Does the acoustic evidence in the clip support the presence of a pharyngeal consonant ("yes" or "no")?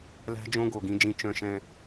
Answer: no